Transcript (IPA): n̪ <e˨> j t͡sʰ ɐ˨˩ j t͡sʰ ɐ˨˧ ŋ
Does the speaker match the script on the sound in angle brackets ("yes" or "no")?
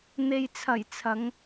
yes